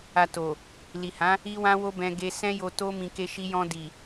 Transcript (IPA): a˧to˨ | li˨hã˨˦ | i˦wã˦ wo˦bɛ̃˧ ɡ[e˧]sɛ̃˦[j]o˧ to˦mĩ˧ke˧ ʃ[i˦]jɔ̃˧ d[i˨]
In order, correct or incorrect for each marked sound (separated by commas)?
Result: correct, correct, incorrect, correct